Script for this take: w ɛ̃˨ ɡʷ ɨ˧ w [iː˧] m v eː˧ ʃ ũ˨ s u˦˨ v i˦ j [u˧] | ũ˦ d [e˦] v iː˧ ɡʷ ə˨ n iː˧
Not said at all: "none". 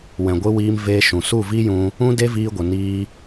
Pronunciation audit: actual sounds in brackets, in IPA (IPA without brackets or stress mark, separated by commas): iː˧, ũ˧, e˦